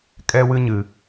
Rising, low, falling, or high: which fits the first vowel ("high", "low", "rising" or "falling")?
high